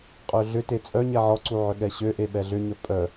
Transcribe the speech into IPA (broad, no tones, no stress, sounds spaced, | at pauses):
qʼ ø ɮ ʏ t e t͡sʼ œ ɲ ɛ ʕ ɔ ǀ u ʕ ʏ ɠ ɛ ɕ ø ʔ e ɓ ɛ ɮ ʏ ɲ œ pʼ œ